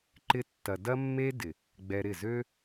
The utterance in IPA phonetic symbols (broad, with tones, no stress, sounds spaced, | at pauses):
ǃ ɪ˧ tː ɐ˨ d ɐ˦ mː e˦ d ɪ˨ | ɡ͡b ɛ˧ ɾ ɪ˦˨ z ø˦